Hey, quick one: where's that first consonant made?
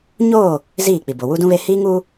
palate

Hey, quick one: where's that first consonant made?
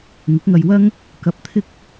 velum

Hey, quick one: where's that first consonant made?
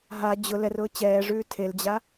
throat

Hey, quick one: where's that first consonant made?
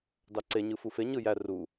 tongue tip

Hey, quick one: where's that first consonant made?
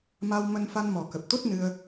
lips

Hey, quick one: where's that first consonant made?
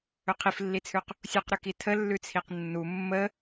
uvula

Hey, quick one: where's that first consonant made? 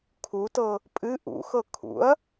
velum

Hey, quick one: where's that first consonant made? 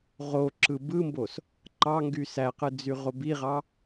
uvula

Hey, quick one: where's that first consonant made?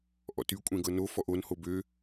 throat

